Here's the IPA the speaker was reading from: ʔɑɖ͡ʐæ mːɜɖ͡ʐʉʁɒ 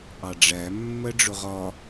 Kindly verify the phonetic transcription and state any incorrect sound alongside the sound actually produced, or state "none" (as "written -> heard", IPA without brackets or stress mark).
ʉ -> ʊ